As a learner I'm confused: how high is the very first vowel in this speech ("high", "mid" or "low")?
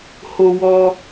mid